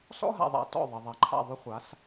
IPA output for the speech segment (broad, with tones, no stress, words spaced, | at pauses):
sɔ̰˦ɦa̰˨ðˤa̰˨ tɔ̰˦˨ðˤe˨ðˤa˨ǃʰa̰˦˨ ðˤʏ˦χʷa˨˦s